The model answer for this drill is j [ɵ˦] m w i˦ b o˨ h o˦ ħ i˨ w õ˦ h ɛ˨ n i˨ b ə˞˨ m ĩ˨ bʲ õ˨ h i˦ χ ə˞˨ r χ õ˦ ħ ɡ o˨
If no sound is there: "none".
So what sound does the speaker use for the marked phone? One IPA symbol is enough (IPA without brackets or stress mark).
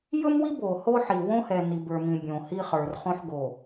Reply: ɵ˦